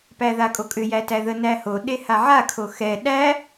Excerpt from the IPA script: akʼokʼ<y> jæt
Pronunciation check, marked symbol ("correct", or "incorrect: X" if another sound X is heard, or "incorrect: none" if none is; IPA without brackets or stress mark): incorrect: ʏ